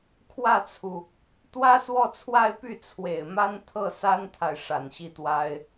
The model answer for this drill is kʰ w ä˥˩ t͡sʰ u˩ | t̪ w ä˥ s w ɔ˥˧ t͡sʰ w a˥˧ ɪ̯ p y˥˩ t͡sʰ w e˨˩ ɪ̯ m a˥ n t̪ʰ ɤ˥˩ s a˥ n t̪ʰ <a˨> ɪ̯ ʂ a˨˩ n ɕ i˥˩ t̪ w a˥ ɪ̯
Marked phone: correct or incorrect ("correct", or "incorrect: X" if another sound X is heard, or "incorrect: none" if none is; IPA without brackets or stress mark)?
correct